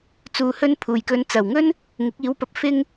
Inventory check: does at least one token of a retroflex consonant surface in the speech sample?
no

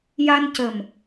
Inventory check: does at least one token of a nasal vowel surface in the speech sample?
no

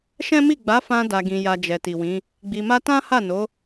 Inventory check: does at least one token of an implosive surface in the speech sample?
no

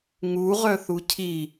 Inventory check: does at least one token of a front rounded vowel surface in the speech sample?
yes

